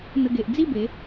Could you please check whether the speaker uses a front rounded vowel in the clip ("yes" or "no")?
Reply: no